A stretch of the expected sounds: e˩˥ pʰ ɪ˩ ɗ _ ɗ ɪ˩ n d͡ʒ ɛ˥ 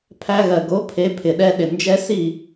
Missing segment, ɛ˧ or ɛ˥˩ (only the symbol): ɛ˧